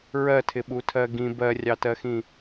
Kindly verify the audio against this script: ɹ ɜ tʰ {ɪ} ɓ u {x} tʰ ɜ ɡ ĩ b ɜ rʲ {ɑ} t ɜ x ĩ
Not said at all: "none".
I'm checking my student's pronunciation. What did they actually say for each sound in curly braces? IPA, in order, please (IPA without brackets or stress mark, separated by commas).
ɪ, none, ɑ